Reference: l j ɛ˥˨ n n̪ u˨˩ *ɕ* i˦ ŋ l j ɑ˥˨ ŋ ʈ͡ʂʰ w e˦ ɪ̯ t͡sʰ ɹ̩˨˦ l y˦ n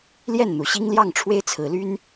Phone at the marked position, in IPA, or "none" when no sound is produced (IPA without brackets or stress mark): ɕ